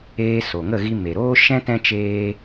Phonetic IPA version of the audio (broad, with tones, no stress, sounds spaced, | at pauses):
eː˧ s o˨ ŋ ə˦˨ ɣ i˧ m e˨ ɾ oː˦ ʃ ɛ̃˦ t ɛ̃˦ t͡ʃ eː˦